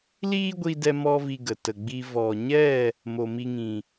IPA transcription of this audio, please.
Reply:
l iː˦ ɡʷ i˧ d ɛ˧ m ɔ˧ v i˧ ɡ ə˨ t ə˨ ɡ͡b i˧ v ɔ˨ ɲ ɛ˦˨ | m o˨ m i˧ ŋ ĩ˨

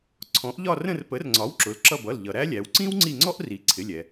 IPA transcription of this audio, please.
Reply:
ǀʰ ɔ̃˩˥ ʔ ʎ ɒ˦˨ r ə̃˦˨ r p ə˩˥ r ŋ͡ǀ ɒ˩˥ w ǁ ʊ˩˥ l ǁ ʌ˦˨ b ʌ˩˧˩ l ʎ ʌ˩ ɾ æ˥ lʲ æ˩˧ w ǀ ĩ˥ w ŋ͡ǀ i˦˨ ŋ͡ǀ ɔ˥ ʔ r i˩˥ ǀʰ ɪ˩˧˩ lʲ ɛ˩

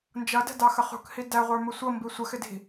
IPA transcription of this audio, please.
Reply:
n d͡ʒ ʌ d ɛ̤ d ɑ x ə χ ṳ k h i d æ ʁʷ ə˞ m ʊ sʷ ʌ m b i sʷ ə x ɪ d i̤

